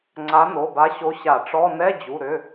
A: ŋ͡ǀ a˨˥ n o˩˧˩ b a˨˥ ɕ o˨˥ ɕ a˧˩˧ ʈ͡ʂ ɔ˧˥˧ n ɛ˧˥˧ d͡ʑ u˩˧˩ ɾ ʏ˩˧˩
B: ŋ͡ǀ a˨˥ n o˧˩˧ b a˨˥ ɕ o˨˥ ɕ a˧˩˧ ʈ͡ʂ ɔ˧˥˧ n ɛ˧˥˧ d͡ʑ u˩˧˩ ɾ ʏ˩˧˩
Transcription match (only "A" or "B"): A